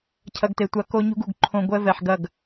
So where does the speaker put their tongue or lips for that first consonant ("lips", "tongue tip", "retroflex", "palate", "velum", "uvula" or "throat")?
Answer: palate